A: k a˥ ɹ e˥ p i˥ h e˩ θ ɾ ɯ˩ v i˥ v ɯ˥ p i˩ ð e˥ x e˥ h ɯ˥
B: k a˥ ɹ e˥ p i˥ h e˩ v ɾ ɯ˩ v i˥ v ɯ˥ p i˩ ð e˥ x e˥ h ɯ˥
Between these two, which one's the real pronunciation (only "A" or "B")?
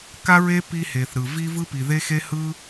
A